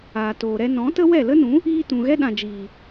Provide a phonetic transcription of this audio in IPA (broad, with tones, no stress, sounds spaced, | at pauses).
aː˨ t oː˨ ɾ ɛ˧ n ɔ̃˨˦ t ə˦ w ɛ˦˨ l ə˦ n ũ˨˦ | iː˧ t ũ˨ ɣ ɛ˦ ɗ ã˨ d͡ʒ iː˨